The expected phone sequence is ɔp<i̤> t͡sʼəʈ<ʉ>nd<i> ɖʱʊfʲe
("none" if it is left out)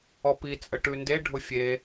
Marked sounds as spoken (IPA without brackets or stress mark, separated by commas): i, ʉ, e